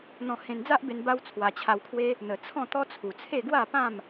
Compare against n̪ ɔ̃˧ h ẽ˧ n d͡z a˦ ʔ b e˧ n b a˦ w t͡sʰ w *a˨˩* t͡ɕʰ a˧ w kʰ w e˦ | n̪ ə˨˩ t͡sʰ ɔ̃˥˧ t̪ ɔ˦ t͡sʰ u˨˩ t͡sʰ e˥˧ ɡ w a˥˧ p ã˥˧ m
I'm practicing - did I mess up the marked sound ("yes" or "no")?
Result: yes